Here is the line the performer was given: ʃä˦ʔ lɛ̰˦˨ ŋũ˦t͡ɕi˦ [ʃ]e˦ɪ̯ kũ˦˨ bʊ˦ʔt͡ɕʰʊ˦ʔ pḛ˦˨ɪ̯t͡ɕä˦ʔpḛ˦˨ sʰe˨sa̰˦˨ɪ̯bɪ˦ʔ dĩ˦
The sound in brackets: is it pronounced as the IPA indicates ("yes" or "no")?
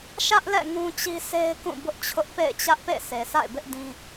no